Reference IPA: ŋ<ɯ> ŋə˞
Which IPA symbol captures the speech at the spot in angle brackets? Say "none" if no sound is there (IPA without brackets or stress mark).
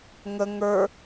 ə